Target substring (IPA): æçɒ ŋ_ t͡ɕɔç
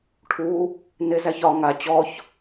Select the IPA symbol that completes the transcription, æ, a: a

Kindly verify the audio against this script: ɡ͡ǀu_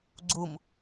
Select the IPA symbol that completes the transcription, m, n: m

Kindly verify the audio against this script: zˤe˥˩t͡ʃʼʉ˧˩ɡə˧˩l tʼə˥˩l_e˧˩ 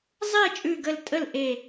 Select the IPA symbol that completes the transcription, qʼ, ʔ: ʔ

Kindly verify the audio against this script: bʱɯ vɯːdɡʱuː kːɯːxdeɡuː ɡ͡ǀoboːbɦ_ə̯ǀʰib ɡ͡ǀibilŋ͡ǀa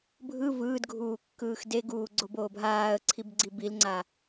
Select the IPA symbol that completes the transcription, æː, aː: aː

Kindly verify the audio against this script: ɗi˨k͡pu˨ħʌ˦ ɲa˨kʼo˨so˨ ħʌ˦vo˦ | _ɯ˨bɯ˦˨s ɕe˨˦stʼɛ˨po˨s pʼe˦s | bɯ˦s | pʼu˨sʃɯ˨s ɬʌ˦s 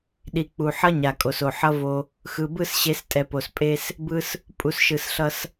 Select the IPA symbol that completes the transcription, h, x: x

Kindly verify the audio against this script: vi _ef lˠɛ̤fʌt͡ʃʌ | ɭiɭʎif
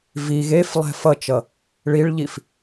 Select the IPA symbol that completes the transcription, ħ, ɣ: ɣ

